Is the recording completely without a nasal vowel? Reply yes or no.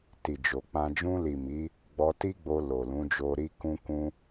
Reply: no